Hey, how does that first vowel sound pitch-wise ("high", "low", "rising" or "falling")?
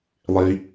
high